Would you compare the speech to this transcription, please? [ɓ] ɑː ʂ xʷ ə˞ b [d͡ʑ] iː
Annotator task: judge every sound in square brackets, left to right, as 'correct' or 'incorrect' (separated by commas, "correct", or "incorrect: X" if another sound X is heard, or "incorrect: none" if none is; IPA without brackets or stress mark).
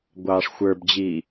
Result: incorrect: ɡʷ, correct